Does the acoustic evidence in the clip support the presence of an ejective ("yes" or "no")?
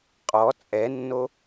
yes